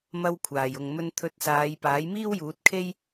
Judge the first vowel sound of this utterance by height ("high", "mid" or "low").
low